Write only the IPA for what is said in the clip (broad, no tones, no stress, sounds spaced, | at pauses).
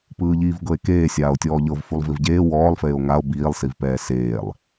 p ɯː ʎ iː v ɡ ɤ e̯ k eː sʲ aː o̯ tʲ ɔː ʎ ɤ v f u lˠ v i v ɟ eː w ɔː lˠ f eː o̯ ŋ a o̯ b iː lˠ s i v p ɛː s eː lˠ